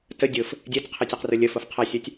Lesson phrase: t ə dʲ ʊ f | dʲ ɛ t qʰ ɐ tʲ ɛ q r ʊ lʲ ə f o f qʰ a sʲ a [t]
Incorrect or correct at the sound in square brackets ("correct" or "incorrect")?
incorrect